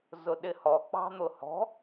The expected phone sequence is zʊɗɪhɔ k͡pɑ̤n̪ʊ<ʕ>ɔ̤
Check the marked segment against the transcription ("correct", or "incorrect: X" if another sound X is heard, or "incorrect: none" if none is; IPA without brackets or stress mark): incorrect: h